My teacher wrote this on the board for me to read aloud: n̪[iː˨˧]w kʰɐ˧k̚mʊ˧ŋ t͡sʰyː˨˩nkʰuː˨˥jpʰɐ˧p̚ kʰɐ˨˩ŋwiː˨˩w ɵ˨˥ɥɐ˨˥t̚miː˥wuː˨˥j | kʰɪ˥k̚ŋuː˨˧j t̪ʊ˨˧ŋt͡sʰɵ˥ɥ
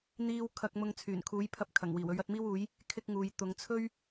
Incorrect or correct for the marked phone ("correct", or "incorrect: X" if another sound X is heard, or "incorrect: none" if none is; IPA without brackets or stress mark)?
incorrect: iː˥